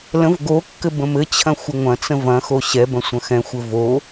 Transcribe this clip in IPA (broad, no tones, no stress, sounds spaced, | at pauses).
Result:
l ə̃ v ɡ o kː ɘ b ə̃ m ɘ t͡ɕʰ ɐ̃ xʷ ə ŋʷ ɐ̃ t͡s ə̃ v ɐ̃ x o ɕ ɛ b ɐ̃ sʷ ɐ̃ x ɛ̃ xʷ ɘ v o